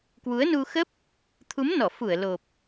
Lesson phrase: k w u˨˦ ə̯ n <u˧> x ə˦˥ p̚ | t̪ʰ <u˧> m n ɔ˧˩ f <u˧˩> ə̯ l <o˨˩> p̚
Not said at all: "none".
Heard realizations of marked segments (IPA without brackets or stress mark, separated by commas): u˧, u˨˦, u˧˩, o˨˩